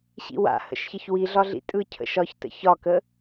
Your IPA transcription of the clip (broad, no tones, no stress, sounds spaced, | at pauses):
ɕ ḭ w a̰ h ə̰ ʃ ç ə ç w i ɮ ɒ ɮ ḭ tʼ ɯ cʰ ə̰ ʃ ɒ ç t ə̰ ç ɒ k ə